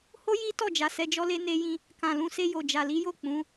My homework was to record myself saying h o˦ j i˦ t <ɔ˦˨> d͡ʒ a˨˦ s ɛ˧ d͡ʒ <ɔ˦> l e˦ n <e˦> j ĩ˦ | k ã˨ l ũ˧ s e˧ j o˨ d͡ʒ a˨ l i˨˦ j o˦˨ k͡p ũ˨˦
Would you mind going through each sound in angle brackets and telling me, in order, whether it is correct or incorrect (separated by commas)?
correct, correct, correct